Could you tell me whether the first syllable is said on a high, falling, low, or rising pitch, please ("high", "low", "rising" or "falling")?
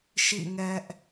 falling